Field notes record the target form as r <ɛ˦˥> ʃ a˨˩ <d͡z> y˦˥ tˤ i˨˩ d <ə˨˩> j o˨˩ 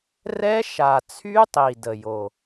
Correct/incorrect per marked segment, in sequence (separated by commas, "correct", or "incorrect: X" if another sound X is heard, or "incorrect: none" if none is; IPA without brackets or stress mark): correct, incorrect: t͡sʰ, correct